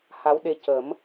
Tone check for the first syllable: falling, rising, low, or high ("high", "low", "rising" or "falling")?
rising